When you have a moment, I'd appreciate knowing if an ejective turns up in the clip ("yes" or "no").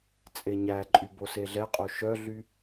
yes